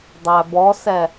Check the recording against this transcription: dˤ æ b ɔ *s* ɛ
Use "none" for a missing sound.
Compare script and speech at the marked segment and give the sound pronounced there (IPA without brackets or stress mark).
s